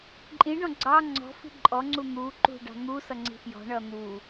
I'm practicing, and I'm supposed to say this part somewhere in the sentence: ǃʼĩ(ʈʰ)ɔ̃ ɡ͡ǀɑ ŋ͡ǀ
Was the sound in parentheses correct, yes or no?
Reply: no